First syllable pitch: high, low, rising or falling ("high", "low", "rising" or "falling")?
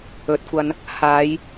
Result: rising